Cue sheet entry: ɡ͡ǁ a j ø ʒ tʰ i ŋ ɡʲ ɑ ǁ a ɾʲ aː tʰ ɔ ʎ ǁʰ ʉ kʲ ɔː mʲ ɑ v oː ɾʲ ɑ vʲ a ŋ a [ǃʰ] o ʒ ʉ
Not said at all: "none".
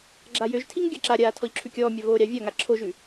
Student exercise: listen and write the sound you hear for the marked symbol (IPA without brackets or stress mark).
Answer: ǁʰ